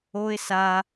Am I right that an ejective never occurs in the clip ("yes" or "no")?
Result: yes